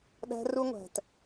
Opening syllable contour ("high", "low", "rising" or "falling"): high